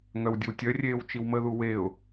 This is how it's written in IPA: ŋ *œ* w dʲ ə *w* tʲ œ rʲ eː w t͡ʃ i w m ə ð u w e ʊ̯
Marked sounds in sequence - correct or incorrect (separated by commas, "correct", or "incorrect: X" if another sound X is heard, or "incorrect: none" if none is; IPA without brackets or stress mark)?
correct, correct